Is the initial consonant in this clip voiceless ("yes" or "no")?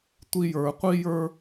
yes